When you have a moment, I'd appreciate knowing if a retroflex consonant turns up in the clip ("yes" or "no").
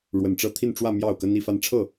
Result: yes